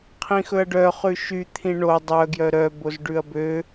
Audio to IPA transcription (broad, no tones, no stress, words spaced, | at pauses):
qʰĩxɵɐ̯ɖœ χʉʃy t̪ʰĩɳo dˤœ ɡjœɾœ bozɖʉɐ̯bø